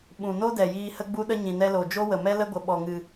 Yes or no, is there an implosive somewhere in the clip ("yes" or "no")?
yes